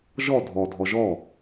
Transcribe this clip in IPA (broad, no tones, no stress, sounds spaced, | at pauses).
ʒ ɔ dʱ ɔ dʱ ɔ ʒ ɔ